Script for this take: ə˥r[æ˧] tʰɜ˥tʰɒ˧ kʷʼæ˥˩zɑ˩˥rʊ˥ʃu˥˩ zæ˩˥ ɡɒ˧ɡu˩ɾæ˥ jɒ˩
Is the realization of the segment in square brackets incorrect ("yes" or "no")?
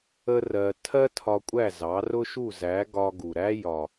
yes